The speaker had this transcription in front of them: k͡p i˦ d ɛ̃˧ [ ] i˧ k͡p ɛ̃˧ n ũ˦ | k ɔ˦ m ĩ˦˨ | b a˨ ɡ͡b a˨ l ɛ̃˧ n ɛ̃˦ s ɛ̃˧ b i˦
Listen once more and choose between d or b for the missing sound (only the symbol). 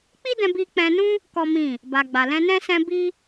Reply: b